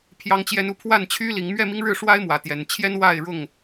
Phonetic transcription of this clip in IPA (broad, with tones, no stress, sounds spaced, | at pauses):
pʰ j ɑ˦ ŋ t͡ɕ j ɛ˦ n u˦ pʰ w a˥˨ n t͡ɕʰ y˦ l i˨˦ ŋ m ɥ ɛ˥˨ m i˦ ŋ ɻ ɻ̩˥˨ ʂ w a˦ ɪ̯ m w ä˨˦ t̪ j ɛ˨˦ n t͡ɕʰ j ɛ˦ n w a˥˨ ɪ̯ ɻ ʊ˥˨ ŋ